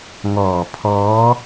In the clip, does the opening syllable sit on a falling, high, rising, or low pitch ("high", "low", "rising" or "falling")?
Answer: low